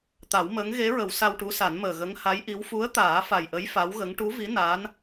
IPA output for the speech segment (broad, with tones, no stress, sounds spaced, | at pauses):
t̪ a˨˩˦ w m əː˧˥ ŋ ɣ e˧˥ ɹ ə˨˩˦ w s a˧ w ʈ u˧˥ s a˨˩˦ n m əː˨˩ ɣ ə˧˥ ŋ h a˧˥ j ʔ i˧˥ w f u˧˥ ə̯ t̪ aː˨˩˦ f a˨˩ j ʔ ə˧˥ j f a˧˥ w ɣ ə˧˥ ŋ ʈ u˧˥ v i˧˥ n aː˧˥ n